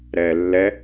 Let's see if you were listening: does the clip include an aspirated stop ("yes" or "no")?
no